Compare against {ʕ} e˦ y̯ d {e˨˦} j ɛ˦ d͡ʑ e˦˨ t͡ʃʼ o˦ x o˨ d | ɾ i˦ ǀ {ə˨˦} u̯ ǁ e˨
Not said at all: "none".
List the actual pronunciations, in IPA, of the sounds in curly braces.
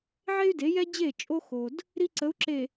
ʕ, e˨˦, ə˨˦

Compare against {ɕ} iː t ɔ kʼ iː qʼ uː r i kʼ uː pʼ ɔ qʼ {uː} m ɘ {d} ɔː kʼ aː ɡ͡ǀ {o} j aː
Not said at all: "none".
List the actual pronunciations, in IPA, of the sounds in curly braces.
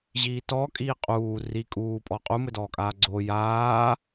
ʑ, u, d, o

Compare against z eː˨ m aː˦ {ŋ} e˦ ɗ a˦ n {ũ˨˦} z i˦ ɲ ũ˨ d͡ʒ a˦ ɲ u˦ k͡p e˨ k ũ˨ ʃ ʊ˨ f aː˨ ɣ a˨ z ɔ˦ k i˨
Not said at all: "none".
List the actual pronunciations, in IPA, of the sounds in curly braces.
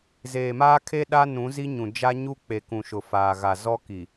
kʰ, ũ˨˦

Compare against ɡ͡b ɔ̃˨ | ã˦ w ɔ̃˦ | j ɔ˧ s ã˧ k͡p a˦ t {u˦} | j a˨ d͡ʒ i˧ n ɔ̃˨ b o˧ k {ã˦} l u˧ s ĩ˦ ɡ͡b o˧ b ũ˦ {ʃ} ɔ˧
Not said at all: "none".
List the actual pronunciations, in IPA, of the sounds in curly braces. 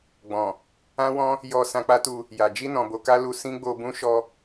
u˧, a˦, ʃ

